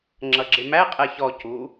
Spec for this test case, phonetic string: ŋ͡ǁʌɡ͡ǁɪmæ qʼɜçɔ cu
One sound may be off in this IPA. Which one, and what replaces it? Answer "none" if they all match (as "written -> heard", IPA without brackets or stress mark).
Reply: none